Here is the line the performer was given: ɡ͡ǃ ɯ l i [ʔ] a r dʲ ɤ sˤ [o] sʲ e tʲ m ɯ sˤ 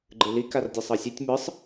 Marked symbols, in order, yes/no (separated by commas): no, no